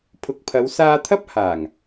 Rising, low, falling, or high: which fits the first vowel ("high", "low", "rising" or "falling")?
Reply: low